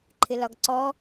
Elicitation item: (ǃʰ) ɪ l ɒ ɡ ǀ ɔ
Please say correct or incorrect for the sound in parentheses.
correct